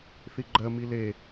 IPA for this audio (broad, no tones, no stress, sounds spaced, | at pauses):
θ i ɡ͡ǃ ɜ m i l e